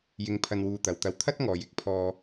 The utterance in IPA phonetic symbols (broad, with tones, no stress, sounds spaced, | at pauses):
j ɪ˧ ŋ pʰ ɐ˧ n w uː˧ t̪ ɐ˨˧ w t̪ ɐ˧ w t̪ʰ ɐ˥ t̚ ŋ ɔː˨ j ɪ˨˥ k̚ pʰ ɔː˧